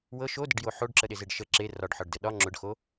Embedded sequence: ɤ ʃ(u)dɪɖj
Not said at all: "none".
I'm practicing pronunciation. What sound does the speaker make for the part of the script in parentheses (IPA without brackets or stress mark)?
o